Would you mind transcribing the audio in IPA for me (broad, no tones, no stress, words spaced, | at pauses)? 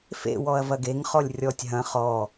fḛ wɔɐ̯vɐɡeŋ χɔlʲrʲɔtʲ ɦɐ̃ χɔ